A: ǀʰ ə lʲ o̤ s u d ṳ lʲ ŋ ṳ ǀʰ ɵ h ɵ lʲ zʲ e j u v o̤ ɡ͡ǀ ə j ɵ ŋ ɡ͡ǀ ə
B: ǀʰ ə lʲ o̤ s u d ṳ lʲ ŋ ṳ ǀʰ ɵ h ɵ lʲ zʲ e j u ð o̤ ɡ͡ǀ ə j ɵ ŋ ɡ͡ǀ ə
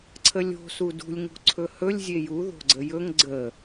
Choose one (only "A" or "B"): B